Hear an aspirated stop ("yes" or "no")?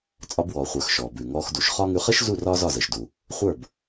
no